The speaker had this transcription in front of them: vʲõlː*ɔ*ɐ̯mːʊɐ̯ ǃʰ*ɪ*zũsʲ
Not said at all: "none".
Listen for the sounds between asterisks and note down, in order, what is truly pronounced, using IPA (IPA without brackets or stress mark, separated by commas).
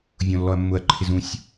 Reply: ɔ, ɪ